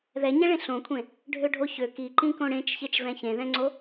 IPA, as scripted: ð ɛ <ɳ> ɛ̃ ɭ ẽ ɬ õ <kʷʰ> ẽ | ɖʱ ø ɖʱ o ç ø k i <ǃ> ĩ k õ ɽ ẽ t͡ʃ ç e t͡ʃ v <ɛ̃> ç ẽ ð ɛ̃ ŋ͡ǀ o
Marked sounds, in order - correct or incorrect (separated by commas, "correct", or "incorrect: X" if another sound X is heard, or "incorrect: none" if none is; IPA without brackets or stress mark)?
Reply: incorrect: ɲ, correct, correct, correct